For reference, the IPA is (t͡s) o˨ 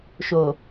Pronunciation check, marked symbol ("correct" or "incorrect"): incorrect